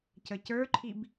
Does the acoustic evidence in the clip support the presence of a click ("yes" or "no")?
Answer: yes